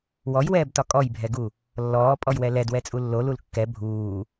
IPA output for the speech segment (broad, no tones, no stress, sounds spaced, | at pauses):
w ɔ j w ɛː b t ɒ kʼ ɔ j bʱ ɛ ɡ u | lː ɔː pʼ ɔ j w ɛ l ɛ d w ɛ t͡sʼ u lː o l u l kː ɛ bʱ uː